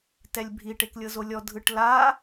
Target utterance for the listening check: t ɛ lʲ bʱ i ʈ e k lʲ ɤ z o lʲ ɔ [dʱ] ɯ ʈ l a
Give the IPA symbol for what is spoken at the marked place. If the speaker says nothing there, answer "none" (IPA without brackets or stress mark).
dʱ